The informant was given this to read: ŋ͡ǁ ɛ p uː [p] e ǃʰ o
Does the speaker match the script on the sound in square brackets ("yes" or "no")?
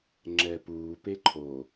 yes